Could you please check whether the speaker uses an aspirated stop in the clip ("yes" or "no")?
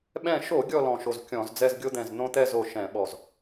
no